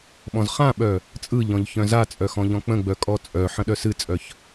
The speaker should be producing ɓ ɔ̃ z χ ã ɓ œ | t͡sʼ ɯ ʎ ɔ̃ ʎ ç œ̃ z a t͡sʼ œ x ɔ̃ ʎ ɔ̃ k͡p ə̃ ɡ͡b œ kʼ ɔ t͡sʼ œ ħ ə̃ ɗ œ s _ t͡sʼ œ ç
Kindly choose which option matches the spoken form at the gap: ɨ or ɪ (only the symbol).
ɨ